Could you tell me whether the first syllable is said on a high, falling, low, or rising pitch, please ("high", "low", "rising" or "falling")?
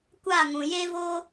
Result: falling